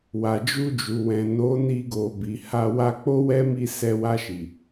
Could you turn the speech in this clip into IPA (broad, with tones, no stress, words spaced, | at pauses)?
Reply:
wa˨d͡ʒu˧d͡ʒu˨wɛ̃˨ no˨˦ni˧ɡo˨ bi˨ha˧ wa˧k͡po˦wɛ˦mi˦˨ sɛ˧wa˧ʃi˨